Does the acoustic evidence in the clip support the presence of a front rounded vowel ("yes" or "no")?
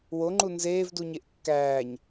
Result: no